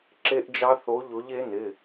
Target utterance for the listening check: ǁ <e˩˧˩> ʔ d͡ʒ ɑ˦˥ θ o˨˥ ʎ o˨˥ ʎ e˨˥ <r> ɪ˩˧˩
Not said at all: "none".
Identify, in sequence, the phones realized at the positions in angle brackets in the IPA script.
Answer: e˦˥, n

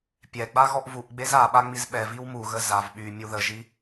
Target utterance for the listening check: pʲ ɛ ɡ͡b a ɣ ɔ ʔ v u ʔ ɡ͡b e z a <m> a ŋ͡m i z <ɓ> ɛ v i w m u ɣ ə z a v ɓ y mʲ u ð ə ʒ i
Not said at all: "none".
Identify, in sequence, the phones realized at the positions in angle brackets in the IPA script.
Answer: ɓ, ɓ

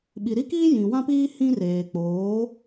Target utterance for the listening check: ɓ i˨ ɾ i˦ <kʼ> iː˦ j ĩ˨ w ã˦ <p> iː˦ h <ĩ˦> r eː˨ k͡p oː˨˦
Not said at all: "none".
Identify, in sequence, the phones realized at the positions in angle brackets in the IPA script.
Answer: k, p, ĩ˦

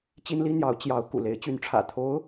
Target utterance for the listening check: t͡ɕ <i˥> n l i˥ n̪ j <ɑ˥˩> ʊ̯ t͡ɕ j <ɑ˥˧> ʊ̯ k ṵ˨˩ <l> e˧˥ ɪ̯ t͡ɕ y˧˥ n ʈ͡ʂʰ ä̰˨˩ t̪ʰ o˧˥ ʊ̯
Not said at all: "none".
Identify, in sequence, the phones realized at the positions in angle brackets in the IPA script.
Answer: i˥, ɑ˧˥, ɑ˧˥, l

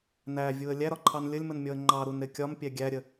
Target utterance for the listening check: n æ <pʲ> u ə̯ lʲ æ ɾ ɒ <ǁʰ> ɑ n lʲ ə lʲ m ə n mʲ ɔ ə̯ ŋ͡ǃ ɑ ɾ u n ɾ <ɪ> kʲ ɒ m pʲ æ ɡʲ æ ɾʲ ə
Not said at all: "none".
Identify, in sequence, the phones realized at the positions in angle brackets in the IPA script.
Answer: vʲ, ǃʰ, ɪ

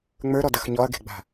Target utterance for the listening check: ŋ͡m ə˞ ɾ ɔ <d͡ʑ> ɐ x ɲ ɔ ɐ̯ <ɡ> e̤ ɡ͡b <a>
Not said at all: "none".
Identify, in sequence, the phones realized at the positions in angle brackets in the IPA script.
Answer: d, ɡ, a̤

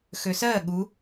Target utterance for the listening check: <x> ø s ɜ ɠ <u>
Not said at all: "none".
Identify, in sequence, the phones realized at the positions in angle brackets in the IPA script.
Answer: x, u

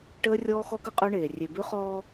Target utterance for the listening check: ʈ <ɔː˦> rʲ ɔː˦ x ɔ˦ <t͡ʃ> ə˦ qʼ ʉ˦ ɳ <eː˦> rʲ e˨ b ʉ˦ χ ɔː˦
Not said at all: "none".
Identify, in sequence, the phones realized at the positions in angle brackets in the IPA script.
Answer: əː˦, k, eː˨

